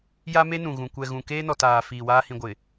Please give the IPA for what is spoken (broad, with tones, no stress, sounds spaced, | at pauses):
j a˦ m e˦ n ũ˨ ɣ ũ˨ kʷ ɛ˨ ɣ ũ˨ k eː˦ n ɔ˨ t aː˨ f iː˨ w aː˦ h ĩ˨ ɡʷ ɪ˨